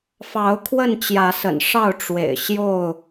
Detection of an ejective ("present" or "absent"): absent